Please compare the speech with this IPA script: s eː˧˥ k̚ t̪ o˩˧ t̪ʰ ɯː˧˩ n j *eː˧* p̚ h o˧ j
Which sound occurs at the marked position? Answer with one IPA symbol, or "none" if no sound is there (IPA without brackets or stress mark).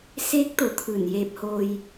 eː˧